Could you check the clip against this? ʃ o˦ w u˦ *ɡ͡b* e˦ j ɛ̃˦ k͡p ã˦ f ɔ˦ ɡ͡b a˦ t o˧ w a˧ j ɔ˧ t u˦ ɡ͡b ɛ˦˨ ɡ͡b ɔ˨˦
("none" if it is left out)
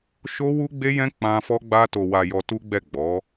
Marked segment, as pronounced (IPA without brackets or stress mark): ɡ͡b